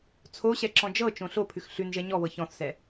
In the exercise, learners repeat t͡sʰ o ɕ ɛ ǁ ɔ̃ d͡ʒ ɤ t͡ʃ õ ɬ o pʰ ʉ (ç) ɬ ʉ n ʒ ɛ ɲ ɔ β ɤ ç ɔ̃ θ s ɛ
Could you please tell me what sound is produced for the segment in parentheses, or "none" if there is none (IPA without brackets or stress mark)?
x